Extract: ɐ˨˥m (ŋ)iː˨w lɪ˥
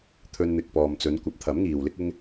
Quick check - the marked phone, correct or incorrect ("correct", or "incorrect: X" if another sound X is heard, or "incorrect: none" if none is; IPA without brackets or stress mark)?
correct